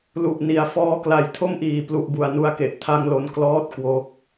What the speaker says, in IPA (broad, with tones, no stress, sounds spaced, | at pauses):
l u˨˩ ʔ n i˩˦ a̯ f ɔː˦˥ k l a˨˩ j tʰ o˥˩ m ʔ iː˨˩ p l u˨˩ ʔ b u˨˩ a̯ n u˧ a̯ k e˨˩ ʔ tʰ a˦˥ ŋ l o˧ n k l ɔː˦˥ t̚ k w o˦˥ k̚